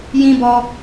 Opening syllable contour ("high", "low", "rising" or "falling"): high